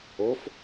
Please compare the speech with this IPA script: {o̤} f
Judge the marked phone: incorrect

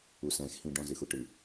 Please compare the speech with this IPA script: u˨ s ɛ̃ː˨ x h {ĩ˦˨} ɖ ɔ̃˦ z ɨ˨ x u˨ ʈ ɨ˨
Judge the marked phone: correct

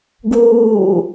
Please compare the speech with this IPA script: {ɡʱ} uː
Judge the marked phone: incorrect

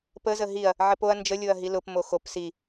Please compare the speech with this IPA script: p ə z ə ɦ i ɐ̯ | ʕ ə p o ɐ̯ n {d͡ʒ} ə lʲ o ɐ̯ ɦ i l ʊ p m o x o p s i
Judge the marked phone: correct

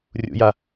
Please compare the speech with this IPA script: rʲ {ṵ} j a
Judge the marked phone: correct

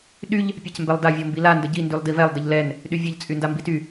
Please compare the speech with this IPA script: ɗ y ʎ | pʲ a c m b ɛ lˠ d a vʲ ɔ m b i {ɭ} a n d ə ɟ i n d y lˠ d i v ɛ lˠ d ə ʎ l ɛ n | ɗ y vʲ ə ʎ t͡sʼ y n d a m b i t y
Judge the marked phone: incorrect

